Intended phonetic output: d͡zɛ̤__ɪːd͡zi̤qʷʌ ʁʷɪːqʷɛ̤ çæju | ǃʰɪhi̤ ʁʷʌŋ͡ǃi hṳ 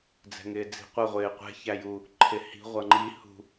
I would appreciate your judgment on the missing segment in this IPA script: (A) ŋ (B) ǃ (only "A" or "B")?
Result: A